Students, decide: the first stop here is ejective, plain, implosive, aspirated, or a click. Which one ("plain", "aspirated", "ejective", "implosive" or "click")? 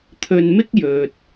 aspirated